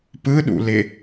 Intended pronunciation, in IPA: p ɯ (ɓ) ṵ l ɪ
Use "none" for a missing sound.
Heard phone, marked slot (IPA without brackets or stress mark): ɗ